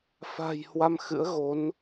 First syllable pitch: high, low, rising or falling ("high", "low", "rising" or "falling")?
low